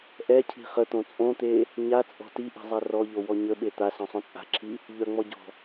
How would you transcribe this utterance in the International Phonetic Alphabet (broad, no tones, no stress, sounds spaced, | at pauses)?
ʔ ɛ cʰ i̤ χ ə t̪ õ t͡sʼ õ t̪ e | ɲ a t͡sʼ ɔ̤ t i ʔ i̤ zˤ ɛ r ɔ ʎ o w ɔ ɲ ə ɓ e t̪ a s ɔ̃ sˤ õ t͡sʼ a̤ ǁʰ i | ʎ œ ŋ͡m ɔ ɟ ɔ̤